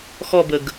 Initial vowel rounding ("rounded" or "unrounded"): rounded